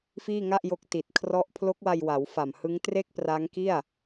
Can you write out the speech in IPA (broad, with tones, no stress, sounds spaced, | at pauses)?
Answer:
f iː˥˩ ŋ a˥˩ ʔ j o˦˥ k̚ t i˨˩ t̚ kʰ r ɔ˦˥ ʔ pʰ l o˦˥ k̚ w a˧ j w a˩˦ w f a˨˩ m h ɯ˦˥ ŋ t r e˥˩ k̚ p r a˦˥ ŋ k i˥˩ a̯